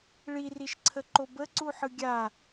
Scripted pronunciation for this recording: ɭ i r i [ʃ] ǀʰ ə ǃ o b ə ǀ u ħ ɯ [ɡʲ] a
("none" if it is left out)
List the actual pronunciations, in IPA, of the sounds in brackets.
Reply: ʃ, ɡʲ

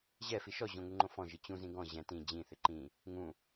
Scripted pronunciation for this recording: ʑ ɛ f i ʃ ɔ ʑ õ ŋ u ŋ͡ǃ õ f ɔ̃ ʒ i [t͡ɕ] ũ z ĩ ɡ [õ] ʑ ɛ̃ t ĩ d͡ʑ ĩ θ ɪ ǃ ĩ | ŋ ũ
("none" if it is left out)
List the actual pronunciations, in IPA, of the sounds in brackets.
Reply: t͡ɕ, ɔ̃

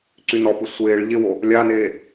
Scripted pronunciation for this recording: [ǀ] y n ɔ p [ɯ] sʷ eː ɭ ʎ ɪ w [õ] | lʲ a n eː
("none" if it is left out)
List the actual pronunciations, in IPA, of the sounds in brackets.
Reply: ǀ, ɯ, o

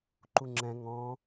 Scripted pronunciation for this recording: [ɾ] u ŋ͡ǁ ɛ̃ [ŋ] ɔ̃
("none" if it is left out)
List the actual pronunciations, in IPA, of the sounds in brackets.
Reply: ǃ, ŋ

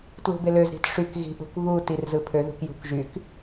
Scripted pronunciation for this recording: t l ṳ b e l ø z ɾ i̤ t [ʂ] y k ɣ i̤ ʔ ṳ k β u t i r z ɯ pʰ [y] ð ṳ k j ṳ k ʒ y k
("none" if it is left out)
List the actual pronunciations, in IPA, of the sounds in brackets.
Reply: ʂ, ø

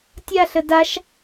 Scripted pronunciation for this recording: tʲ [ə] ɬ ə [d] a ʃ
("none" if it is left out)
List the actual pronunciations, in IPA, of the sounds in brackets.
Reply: a, d

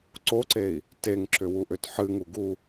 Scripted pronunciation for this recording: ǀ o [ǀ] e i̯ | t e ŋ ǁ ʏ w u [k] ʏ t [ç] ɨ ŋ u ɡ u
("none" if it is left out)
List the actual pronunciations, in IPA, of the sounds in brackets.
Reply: ǀ, ʔ, ħ

